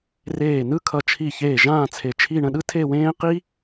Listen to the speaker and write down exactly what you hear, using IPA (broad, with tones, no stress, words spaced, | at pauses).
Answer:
reː˧˩ nɯ˥kʰʌ˧˩ t͡ʃʰi˧˩ çeː˧˩ ʒãː˥˧t͡sʰe˧˩ t͡ʃʰi˥˧ ɳə̃˥˧ɗɯ˥tʰe˥˧wẽː˥ qi˥